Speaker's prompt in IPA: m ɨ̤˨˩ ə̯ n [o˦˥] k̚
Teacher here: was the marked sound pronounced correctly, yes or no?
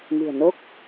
yes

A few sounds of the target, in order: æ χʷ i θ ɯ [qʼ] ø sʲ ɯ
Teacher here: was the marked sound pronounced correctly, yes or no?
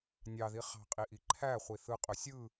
yes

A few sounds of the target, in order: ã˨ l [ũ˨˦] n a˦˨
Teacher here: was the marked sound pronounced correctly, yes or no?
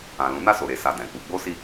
yes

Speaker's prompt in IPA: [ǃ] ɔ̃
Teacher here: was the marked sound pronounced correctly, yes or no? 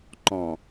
yes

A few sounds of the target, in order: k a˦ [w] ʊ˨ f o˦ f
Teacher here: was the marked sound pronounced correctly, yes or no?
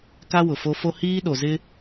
yes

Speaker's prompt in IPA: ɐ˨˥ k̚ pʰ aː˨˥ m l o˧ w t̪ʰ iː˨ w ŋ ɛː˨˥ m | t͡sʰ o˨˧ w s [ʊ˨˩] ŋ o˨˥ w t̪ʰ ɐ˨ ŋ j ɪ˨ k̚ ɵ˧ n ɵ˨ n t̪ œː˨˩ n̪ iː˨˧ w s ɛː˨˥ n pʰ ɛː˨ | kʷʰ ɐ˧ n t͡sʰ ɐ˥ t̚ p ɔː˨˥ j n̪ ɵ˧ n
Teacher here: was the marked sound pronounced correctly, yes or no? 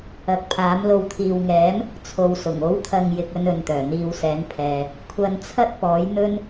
yes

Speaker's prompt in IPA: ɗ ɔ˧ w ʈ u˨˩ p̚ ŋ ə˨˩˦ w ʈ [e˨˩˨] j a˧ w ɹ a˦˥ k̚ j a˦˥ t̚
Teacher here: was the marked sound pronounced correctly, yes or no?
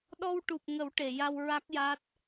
yes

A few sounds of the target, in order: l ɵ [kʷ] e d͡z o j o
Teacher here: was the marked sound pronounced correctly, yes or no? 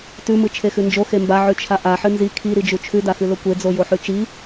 yes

